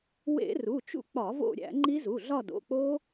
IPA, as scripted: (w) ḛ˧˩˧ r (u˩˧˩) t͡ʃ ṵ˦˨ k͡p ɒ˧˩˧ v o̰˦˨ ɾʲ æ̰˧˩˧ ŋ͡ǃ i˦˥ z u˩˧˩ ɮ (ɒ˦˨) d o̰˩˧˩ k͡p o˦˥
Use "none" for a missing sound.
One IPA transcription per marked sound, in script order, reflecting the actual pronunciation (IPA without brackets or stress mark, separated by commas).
w, u˩˧˩, ɒ˦˨